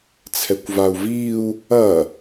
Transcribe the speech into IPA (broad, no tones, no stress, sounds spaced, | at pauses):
t͡sʰ ɛ kʷ v a u̯ v iː u̯ | ɐ